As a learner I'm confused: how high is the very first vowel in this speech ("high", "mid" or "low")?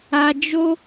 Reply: low